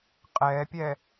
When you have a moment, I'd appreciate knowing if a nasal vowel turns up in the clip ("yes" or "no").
no